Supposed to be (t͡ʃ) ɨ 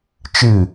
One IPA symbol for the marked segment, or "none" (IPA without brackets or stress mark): t͡ʃ